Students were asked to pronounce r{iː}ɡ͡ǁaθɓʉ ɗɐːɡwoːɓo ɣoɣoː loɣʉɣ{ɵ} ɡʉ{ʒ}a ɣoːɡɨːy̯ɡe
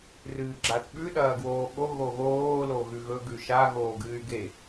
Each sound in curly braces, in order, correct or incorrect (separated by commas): incorrect, correct, incorrect